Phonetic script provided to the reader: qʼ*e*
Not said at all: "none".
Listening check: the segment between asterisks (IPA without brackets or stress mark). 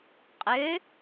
ø